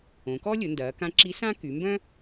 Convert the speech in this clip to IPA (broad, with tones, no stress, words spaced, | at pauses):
õ˩˧kɔ˥lʲʊ˩˧ndɐː˩˧ kã˧˥ǁi˧˥ sã˥ ky˩˧mbœ̃˥